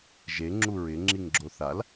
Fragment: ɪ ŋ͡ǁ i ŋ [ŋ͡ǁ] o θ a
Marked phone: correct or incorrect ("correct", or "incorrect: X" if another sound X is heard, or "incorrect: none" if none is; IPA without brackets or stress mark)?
incorrect: ɡ͡ǁ